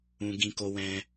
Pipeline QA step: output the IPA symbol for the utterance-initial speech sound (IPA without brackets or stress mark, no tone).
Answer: ũ